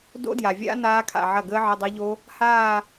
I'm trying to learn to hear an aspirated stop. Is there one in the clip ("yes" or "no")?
yes